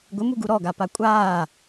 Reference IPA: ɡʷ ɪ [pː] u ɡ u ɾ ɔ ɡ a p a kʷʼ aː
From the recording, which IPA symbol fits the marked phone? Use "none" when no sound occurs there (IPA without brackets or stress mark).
m